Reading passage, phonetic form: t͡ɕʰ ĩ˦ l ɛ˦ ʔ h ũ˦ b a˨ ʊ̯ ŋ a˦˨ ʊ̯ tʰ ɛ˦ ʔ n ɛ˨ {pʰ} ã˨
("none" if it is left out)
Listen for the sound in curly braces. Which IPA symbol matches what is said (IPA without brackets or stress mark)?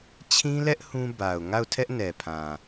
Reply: pʰ